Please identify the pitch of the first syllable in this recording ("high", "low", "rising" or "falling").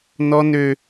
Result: high